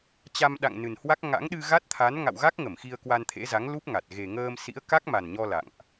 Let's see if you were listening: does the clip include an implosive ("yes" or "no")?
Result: yes